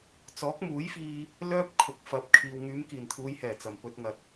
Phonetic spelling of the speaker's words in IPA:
t͡s ɔː˨˥ k̚ m uː˨˥ j f iː˧ | l œː˥ p̚ kʰ ʊ˨˥ k̚ f ɐ˨˥ p̚ kʰ iː˨ w ŋ yː˨˧ m k iː˨˩ n t̪ʰ uː˨˧ j h ɛː˨˩ t͡s ɐ˨˩ m p ɵ˧ t̚ ŋ ɐ˨ t̚

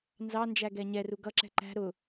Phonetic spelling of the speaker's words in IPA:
n z ɑ n d͡ʒ æ ɡ ɛ ɲ ɛ r u ɡ ʌ ǁ ɛ̤ ǃ æ̤ ɾ ʊ

